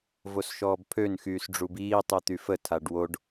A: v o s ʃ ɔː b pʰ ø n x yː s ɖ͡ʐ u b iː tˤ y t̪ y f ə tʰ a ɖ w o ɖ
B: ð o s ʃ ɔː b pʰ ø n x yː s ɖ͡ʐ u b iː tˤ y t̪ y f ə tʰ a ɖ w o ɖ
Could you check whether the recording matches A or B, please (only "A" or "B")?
A